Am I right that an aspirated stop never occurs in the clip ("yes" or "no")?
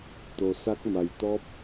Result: yes